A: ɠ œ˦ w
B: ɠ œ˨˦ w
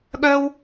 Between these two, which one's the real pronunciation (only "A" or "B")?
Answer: A